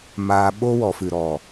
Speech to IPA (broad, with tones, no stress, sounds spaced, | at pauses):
m aː˧ ɓ o˦ w ɔ˨ f ɨ˨ ɾ ɔ˨